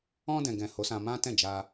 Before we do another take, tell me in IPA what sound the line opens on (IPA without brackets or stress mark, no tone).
ɔ̃